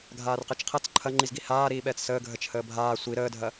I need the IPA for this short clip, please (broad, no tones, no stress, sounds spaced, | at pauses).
ɡʱ aː r q ɛ t͡ʃ qʰ ɐ t͡s ǃʰ ɐ ŋ͡ǃ i z ɡ i h aː ɾ iː ɓ ɛː t͡s s əː ɡʱ ə t͡ʃ h əː bʱ aː sʷ i ɾ əː dʱ ɐ